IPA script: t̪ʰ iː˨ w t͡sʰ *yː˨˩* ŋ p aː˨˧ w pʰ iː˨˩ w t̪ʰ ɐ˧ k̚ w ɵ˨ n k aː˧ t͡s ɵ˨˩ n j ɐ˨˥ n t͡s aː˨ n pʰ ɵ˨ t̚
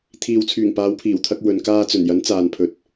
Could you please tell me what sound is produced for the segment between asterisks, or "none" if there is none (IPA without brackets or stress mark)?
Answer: yː˨˩